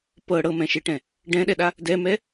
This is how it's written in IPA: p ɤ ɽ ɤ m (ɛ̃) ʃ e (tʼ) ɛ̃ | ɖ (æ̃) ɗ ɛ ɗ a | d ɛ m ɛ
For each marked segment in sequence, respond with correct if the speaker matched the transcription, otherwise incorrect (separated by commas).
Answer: correct, incorrect, incorrect